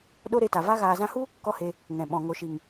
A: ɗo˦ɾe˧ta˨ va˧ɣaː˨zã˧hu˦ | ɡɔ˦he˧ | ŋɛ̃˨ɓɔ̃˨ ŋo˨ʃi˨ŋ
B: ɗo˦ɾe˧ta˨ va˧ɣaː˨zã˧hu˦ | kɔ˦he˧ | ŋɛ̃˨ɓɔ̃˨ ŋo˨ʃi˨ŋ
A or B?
B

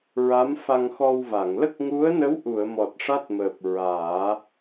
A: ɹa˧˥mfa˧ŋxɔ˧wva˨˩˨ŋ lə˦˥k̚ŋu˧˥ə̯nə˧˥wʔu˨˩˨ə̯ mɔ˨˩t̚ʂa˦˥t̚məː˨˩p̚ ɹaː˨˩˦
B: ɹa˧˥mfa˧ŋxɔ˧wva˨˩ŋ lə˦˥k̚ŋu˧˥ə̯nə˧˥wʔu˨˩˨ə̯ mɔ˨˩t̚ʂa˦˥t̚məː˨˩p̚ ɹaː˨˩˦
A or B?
A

